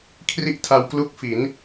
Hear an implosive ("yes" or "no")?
no